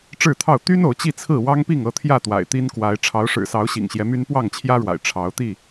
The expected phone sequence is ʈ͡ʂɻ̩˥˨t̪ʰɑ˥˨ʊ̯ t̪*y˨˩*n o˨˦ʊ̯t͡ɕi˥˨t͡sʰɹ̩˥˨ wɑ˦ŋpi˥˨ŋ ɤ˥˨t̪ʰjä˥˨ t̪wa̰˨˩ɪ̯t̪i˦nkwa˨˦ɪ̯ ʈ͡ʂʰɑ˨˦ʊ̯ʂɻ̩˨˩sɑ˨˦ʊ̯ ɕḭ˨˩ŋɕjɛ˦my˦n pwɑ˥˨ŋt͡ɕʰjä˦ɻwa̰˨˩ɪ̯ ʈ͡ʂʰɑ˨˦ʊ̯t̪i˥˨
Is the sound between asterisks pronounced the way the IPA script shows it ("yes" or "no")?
no